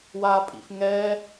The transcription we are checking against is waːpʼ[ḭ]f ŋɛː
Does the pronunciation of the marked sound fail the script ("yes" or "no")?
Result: no